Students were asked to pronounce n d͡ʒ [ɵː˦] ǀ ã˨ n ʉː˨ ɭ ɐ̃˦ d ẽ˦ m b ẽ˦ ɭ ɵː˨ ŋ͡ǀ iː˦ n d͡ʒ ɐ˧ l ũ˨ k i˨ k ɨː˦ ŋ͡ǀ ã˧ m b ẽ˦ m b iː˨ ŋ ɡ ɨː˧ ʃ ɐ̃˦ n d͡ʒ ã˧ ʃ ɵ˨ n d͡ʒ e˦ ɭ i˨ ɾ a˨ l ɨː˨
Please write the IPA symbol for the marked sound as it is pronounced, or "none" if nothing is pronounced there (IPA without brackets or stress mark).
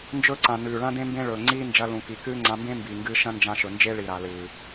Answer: ɵː˦